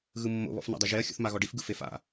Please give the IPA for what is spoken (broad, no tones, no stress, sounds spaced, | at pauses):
ɣ ɯ mː o̰ β ɔ̰ f n a̰ dˤ ɯ ʒ e ɐ̯ xʲ ṵ θ m a ɣ ɔ ɖ i f ɡ ɯ f e f a̰